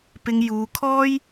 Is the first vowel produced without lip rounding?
yes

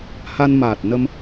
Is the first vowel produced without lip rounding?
yes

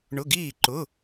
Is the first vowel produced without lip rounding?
no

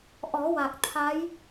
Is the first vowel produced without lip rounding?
no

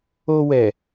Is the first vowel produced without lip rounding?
no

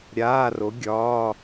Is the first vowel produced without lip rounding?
yes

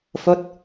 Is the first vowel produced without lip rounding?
no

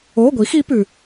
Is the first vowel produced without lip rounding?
no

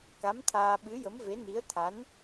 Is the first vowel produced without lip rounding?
yes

